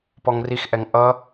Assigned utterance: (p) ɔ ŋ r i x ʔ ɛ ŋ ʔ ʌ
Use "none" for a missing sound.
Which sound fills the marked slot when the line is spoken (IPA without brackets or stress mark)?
p